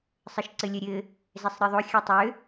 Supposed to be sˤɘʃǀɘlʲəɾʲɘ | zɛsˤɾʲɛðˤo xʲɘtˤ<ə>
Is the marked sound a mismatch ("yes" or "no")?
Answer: yes